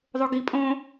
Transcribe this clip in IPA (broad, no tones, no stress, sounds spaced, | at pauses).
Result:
ðˤ o ɡ i pʼ õː